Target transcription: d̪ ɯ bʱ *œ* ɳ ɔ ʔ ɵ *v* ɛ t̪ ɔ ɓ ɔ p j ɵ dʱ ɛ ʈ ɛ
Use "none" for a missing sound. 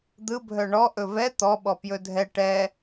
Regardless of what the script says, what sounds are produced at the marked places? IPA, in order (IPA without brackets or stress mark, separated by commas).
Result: œ, v